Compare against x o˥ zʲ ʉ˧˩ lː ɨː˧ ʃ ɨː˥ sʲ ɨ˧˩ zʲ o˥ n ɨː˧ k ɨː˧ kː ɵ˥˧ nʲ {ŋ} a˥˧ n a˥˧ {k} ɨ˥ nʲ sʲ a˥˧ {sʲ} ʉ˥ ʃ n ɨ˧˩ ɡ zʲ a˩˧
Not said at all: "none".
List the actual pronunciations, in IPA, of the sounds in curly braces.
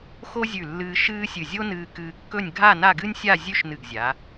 ɡʱ, ɡ, zʲ

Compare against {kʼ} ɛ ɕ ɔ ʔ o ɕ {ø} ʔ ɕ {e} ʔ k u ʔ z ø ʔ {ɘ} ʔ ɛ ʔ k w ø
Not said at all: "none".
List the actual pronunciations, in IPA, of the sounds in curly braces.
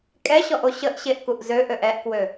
kʼ, ə, e, ø

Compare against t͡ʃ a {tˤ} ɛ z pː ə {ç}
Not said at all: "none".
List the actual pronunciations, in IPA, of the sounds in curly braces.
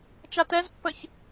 t, ç

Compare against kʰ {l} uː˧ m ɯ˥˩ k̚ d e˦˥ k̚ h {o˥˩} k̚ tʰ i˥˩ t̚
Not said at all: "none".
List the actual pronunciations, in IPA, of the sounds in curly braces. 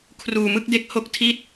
r, o˥˩

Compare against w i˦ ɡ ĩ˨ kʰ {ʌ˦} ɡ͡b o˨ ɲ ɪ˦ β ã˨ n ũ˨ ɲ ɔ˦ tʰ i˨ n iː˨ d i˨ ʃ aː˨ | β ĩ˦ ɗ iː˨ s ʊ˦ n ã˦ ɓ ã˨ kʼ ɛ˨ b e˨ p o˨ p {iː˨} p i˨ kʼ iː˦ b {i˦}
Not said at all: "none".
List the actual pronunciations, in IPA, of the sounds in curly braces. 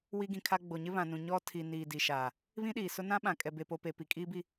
a˦, eː˨, i˦

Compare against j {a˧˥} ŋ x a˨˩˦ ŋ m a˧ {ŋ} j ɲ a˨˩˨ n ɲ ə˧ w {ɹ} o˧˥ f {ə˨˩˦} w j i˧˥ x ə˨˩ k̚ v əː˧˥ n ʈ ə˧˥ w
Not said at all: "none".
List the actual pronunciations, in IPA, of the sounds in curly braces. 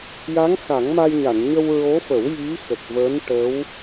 a˧˥, none, ɹ, ə˨˩˦

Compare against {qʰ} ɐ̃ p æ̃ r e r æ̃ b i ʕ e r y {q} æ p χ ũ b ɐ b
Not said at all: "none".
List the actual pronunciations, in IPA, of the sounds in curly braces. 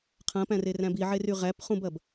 qʰ, ʁ

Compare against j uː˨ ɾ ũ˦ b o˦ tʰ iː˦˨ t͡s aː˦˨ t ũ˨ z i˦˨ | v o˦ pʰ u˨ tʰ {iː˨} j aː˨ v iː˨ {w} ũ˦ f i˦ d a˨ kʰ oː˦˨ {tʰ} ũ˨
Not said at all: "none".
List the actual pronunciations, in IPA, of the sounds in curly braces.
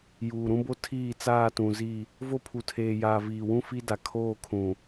eː˨, w, kʰ

